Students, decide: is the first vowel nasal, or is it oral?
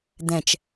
nasal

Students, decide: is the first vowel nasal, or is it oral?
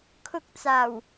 oral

